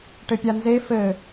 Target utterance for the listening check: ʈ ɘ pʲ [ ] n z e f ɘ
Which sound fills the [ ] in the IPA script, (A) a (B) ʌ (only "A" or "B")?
A